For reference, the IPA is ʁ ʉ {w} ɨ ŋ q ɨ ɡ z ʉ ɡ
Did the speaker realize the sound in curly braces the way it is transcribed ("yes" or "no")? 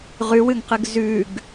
yes